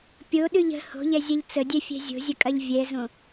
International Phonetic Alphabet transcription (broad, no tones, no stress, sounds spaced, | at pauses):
pʲ o ɗ ʉ ʎ ə̤ h o̤ ʎ ɛ zʲ ɐ ʎ t͡s ə dʲ ɛ fʲ ɛ̤ zʲ o̤ zʲ ə kʼ ɐ ʎ vʲ ɛ z õ